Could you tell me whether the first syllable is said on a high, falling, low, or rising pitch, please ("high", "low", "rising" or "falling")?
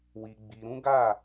low